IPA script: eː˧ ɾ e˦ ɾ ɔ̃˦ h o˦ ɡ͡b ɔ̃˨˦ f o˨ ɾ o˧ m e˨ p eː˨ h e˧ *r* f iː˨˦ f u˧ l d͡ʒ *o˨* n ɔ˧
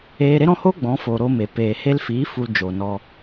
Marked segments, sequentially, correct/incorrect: incorrect: l, correct

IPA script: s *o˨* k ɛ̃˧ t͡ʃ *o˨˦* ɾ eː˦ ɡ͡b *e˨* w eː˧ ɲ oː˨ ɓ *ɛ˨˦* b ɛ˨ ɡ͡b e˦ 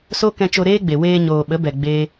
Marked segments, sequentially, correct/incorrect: incorrect: o˦, incorrect: o˧, correct, incorrect: ə˨˦

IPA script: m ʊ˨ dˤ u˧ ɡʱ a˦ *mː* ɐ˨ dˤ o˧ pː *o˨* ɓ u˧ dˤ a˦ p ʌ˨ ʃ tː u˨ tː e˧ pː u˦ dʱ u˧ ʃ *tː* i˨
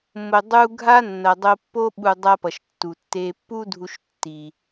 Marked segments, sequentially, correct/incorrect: incorrect: nː, incorrect: o˦, correct

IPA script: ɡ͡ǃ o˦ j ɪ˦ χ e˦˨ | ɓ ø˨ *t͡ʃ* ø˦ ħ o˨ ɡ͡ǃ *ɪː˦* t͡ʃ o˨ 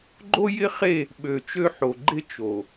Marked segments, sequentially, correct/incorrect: correct, incorrect: ɪ˦

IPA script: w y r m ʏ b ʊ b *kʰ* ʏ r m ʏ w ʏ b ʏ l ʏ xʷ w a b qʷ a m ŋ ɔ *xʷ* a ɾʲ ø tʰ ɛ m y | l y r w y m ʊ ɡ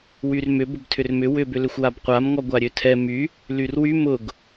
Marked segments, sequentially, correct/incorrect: incorrect: tʰ, incorrect: ɡʷ

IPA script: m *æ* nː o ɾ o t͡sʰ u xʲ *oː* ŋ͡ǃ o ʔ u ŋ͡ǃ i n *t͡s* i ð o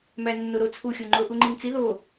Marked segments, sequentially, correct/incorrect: correct, incorrect: o, correct

